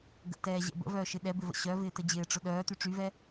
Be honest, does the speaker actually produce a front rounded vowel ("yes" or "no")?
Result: yes